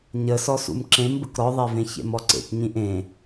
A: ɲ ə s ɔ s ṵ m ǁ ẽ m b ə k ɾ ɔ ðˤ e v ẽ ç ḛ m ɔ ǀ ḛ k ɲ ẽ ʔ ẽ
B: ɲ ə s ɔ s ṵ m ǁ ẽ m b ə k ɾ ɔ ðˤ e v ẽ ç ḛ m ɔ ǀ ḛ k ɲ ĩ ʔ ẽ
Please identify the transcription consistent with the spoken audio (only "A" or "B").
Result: B